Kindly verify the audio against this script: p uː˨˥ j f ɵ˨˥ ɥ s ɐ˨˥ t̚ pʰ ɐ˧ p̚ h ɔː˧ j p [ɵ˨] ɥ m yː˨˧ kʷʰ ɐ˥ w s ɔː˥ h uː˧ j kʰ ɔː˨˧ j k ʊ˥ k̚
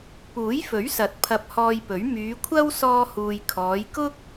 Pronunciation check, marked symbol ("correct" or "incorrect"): incorrect